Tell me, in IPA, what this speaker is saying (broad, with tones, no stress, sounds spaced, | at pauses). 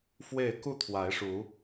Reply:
f w e˥˨ ɪ̯ k u˥˨ t̪ʰ w a˨˦ ɪ̯ ʂ u˨˦